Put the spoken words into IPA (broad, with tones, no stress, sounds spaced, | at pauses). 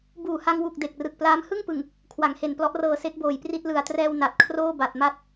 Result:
b uː˨˩ h a˧ ŋ w u˨˩ k̚ d e˨˩ k̚ r ɯ˨˩ k̚ p l aː˦˥ m h ɯ˥˩ ŋ p ɯ˨˩ ŋ | kʰ w a˩˦ ŋ h e˨˩ n p l ɔ˦˥ ʔ r ɤː˧ s e˦˥ k̚ b oː˨˩ j p r i˥˩ t̚ l ɯ˨˩ a̯ t r ɛː˧ w n a˨˩ t̚ kʰ r oː˥˩ b a˨˩ t̚ m a˦˥ t̚